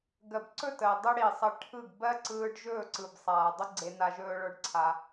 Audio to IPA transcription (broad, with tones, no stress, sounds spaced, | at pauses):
ɡ ɜ˨ b ǀ ɵ˦˨ t əː˨ dˤ ɯ˧ ɽ i˨ sˤ ə˧ ʈʰ ɯ˦˨ ɡ b ɜ˦ ǀ ɯː˧ ɖ ʒ ɵː˦˨ ǀ ɯ˨ b sˤ aː˨ dˤ ə˦ ɡ͡ǀ e˧ n a˧ ʒ ɵː˧ ɭ ə˞˦ ɖ ǀʰ a˧